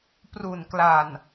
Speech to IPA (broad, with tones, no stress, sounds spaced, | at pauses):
p r u˨˩ n k l a˨˩ n